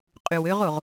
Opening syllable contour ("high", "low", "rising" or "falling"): low